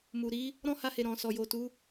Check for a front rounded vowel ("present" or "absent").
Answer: absent